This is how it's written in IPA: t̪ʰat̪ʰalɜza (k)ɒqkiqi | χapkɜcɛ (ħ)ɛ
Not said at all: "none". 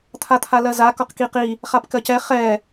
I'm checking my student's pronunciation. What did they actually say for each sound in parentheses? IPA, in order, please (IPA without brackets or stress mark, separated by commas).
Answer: k, χ